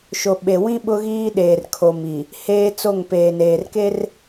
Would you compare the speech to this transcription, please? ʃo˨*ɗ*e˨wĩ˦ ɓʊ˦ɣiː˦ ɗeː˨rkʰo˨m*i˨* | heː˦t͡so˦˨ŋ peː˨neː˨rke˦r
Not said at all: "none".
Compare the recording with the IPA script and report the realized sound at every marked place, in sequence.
ɓ, i˨

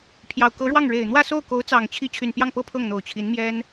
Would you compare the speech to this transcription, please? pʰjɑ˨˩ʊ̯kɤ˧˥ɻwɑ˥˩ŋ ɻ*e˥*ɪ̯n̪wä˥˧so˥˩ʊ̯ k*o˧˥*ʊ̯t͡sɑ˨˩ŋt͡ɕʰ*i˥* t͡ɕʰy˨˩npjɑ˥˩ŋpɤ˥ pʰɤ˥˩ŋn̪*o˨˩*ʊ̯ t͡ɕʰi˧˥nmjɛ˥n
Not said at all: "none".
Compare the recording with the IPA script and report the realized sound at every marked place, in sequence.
e˨˩, o˧˥, i˧˥, o˨˩

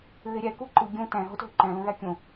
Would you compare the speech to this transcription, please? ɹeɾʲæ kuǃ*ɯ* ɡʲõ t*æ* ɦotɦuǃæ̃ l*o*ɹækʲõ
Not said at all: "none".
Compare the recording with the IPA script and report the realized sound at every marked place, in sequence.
ɯ, æ̃, õ

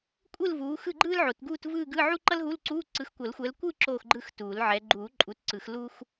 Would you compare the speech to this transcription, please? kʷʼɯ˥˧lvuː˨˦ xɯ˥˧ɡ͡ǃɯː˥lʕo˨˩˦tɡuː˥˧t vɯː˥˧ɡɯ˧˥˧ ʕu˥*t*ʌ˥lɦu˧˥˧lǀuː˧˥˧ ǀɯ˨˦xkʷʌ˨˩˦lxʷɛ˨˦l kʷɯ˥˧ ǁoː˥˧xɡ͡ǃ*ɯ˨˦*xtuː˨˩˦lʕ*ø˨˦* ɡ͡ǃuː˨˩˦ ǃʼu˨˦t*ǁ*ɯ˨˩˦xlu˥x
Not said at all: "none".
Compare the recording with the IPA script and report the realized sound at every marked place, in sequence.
ǃ, ɯ˥˧, ɛ˨˦, ǀ

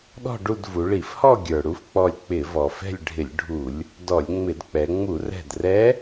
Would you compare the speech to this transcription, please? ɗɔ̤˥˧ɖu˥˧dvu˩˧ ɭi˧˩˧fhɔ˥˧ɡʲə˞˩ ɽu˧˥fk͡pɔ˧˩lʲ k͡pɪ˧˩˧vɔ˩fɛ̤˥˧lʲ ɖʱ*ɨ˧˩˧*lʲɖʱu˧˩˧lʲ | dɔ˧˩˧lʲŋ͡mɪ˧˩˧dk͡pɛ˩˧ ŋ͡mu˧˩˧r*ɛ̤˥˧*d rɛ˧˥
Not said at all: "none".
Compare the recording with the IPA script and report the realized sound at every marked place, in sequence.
ɪ˧˩˧, ɛ̤˧˩

